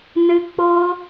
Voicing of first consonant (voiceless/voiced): voiced